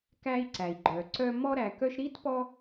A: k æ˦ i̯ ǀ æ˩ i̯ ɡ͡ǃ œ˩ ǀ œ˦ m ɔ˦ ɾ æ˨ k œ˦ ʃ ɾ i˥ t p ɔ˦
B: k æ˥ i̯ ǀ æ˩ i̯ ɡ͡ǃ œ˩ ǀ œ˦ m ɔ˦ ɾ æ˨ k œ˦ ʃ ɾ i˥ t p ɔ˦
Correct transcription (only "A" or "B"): A